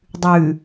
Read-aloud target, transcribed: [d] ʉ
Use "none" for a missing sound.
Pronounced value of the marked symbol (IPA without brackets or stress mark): dˤ